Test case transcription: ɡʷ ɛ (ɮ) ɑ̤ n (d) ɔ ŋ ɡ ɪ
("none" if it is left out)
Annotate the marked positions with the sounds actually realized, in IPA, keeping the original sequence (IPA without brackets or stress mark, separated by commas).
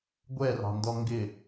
r, d